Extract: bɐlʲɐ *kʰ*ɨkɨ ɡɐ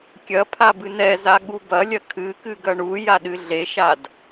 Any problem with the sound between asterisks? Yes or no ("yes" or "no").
no